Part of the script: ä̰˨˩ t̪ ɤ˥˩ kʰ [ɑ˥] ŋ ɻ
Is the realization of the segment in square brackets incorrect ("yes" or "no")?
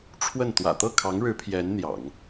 yes